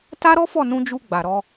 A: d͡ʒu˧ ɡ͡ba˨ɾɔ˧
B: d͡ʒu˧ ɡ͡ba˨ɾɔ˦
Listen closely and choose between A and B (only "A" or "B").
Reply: A